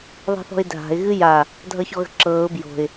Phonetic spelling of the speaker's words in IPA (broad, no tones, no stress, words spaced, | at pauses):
ðˤi̤θɔ̤ɪ̯dʱa̤ɪ̯ ɣɨja | dʱʌçɔɣə̤ǁɤːʊ̯ bjo̤ɪ̯